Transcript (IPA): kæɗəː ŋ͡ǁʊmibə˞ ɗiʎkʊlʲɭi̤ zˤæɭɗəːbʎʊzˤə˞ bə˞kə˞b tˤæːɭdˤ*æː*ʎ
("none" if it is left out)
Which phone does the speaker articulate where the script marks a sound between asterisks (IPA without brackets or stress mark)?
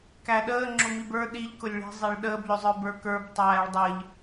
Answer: əː